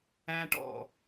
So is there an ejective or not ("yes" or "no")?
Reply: no